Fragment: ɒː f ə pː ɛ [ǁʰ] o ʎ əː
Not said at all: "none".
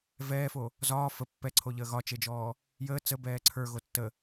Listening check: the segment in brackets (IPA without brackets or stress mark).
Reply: ǀʰ